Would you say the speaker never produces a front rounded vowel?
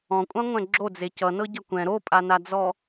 yes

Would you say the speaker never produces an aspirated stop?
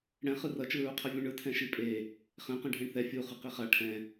no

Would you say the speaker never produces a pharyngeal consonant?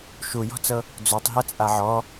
no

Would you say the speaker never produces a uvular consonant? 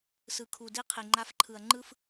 no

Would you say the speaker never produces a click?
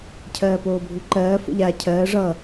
no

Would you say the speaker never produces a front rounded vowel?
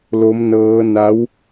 yes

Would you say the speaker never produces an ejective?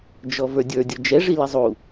yes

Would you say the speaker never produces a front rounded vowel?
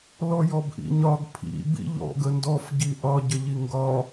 yes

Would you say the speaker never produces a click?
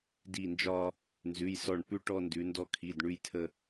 yes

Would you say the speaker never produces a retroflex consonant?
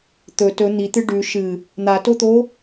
no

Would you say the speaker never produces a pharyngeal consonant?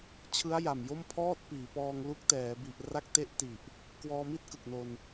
yes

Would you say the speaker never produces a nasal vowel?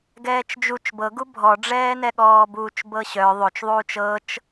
yes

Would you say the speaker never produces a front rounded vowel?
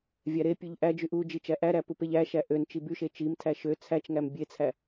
no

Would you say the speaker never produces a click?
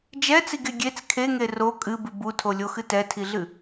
yes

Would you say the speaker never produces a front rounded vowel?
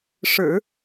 yes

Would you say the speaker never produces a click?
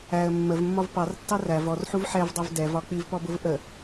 yes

